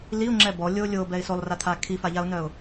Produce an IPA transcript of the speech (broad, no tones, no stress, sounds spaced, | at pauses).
l i ʊ̯ ŋ͡ǁ ɛ b ɔ lʲ o lʲ o b ɛ ɪ̯ s o lˠ r a t̪ʰ a kʰ i f a ʎ a ʊ̯ n œ ʊ̯